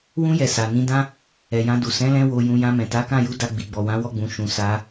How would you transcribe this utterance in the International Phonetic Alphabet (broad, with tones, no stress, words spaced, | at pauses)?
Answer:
wũ˧jɛ˨ sa˨nĩ˧dã˦ | ɛ˨jã˧du˨ sɛ̃˨˦lɛ̃˧ wo˧jũ˧ jã˧mɛ̃˨ ta˨˦kã˦˨ju˨˦ da˧ɡ͡bi˨ɡ͡bɔ˨ wã˨˦wɔ˦˨ɡ͡bũ˨ ʃũ˨ sa˨˦